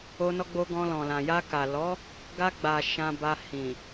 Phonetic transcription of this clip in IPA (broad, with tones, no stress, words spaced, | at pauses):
o˧nɔ˧ɡ͡bo˧ ɡɔ̃˧lɔ̃˨lã˨ ja˧ka˨ lɔ˨˦ | ɡa˧ɡ͡ba˨ ʃã˧ba˧hĩ˨